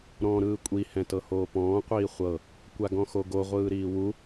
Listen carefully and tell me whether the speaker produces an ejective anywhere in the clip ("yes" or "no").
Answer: yes